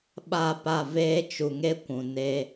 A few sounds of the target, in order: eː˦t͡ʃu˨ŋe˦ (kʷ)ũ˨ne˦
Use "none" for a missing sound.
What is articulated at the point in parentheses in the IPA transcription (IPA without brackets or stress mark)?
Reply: kʷ